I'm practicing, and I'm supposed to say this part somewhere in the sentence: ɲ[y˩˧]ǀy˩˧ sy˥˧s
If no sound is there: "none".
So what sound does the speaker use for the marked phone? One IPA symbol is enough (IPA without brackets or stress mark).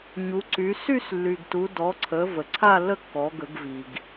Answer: u˩˧